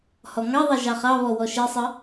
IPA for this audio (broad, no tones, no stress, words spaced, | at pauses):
hɔŋɑðˤe ʒɑχɑβɔ wɔʃesˤə